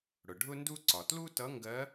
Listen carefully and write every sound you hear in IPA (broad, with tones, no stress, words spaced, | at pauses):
ɽʊ˩ɖʱʊ˥ndu˥ ǀɒ˩tlu˥tʌ˧˥ ŋɡɜ˧˥